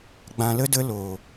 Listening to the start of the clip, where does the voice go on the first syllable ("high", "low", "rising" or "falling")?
low